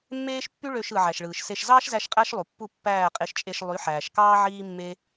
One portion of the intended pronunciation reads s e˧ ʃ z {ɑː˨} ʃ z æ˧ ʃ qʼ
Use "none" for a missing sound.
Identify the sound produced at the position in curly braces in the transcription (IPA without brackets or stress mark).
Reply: ɑː˦